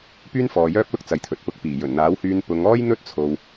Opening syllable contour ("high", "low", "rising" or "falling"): high